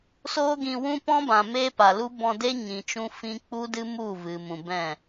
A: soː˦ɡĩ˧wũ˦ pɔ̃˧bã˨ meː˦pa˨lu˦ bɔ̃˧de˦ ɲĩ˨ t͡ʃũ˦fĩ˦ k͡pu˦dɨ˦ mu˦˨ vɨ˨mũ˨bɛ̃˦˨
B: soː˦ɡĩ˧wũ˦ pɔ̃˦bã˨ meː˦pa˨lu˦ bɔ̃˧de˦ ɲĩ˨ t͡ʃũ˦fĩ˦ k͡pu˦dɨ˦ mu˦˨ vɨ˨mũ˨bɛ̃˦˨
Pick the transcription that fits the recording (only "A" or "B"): B